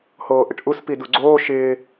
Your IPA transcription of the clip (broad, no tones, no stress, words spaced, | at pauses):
hoːʔɪʈʔus piduɡ͡ǀoː ʃɪː